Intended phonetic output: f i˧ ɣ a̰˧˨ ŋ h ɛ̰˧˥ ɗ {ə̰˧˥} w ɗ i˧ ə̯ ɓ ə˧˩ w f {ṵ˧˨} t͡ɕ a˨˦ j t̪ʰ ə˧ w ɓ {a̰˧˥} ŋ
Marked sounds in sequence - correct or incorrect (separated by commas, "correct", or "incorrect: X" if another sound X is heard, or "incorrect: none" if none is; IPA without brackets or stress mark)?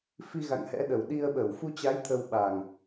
incorrect: ə˨˩, incorrect: u˧, incorrect: a˨˩